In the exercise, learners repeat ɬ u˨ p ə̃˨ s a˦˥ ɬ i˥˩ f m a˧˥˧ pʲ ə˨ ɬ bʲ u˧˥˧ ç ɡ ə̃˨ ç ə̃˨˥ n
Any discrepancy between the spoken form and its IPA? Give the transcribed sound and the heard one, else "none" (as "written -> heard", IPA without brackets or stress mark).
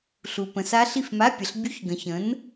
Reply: none